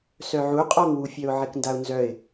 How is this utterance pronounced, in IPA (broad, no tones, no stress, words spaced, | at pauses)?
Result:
sœʕuqʼɔŋwu fʲœʊ̯ʕɪkndaʊ̯nzœɪ̯